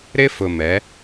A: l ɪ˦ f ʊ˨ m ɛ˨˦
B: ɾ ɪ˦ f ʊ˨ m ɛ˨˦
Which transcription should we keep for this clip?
B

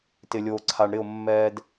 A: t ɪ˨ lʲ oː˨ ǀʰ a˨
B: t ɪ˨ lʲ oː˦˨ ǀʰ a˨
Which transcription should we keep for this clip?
A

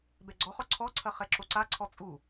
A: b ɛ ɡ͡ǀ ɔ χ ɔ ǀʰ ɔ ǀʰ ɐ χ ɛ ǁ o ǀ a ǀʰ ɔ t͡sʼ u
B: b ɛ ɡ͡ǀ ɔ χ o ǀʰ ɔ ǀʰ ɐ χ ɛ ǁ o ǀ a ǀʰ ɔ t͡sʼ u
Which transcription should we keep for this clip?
A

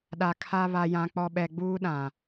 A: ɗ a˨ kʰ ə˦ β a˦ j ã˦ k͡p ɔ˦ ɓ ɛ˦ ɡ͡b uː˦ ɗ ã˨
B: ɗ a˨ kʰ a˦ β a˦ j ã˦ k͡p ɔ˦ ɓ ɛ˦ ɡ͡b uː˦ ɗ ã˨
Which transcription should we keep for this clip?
B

